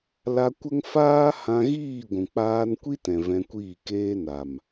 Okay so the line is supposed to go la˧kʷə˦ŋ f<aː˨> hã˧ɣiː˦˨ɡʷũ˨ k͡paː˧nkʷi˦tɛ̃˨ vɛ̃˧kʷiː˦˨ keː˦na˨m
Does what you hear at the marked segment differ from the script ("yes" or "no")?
yes